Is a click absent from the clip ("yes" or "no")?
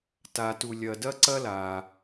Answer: no